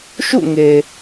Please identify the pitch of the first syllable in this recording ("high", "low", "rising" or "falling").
falling